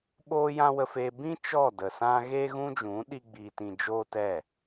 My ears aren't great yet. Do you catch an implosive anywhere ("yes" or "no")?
yes